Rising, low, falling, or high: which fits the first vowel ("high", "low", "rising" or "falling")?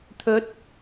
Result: rising